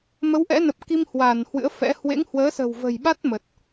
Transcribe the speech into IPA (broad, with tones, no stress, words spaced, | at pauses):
mə˨˦wʔɛ̰˧˥nə˨˩p̚ ki˧mhwa˧˩n hwɨ̰˧˥ə̯fɛ̰˧˥ hwḛ˧˥ŋhwəː˨˦ sə̤˨˩wvə̤˨˩jɓa˦˥t̚ mə˨˩t̚